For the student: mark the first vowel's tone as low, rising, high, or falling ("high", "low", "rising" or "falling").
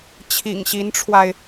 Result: low